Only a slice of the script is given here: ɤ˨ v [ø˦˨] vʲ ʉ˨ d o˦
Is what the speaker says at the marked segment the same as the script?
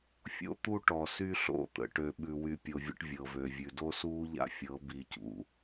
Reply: no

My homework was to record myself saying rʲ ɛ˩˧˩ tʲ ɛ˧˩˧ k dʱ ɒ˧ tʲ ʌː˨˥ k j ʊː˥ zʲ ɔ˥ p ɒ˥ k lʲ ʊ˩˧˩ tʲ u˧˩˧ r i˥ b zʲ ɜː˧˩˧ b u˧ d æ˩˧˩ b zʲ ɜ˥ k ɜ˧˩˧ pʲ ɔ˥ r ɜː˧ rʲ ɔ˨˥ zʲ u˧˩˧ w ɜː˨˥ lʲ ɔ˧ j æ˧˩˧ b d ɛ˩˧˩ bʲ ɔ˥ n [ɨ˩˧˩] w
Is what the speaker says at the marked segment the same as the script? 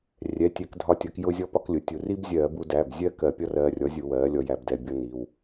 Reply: no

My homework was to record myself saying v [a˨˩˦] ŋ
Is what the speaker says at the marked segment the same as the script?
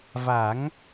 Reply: yes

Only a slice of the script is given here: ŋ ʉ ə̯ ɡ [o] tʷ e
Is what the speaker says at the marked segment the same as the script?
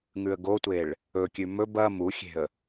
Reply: yes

